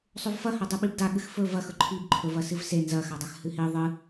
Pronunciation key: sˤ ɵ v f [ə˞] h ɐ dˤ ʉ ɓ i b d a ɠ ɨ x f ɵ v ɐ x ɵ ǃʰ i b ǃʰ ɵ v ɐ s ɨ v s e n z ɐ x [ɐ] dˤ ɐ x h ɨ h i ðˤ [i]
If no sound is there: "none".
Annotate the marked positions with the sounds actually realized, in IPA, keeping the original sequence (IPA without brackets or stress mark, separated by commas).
ɐ, a, ɨ